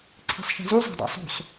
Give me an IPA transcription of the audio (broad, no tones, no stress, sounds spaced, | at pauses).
ǀʰ e̤ sˤ ʃ e̤ z u zˤ e̤ dˤ ɑ̰ sˤ ṳ sˤ